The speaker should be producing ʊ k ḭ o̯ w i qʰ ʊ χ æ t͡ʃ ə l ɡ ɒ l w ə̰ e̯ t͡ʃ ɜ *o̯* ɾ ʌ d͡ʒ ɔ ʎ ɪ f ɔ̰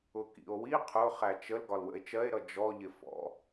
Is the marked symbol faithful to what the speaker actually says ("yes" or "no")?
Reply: no